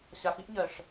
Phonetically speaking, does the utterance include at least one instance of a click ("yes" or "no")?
no